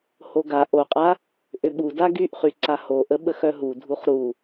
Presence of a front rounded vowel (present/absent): present